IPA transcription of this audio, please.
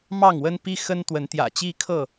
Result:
m ɑ˥˨ ŋ w ə˦ n p i˦ x ə˦ n t̪ w ə˨˦ n t̪ j ä̰˨˩ t͡ɕ i˦ kʰ ɤ˥˨

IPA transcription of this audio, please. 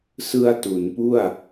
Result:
s ɯ˧ a̯ t u˩˦ n p u˥˩ a̯

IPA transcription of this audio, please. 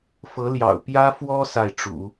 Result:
f ɤ˧˥ l j ɑ̰˨˩ ʊ̯ p j ä˥ f w ɔ˥ s a˥˩ ɪ̯ ʈ͡ʂ ṵ˨˩˦

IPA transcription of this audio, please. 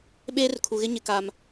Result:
ɓ eː˦ r kʰ u˨ ɣ ɪ˦ ɲ ɪ˨ k a˨ m

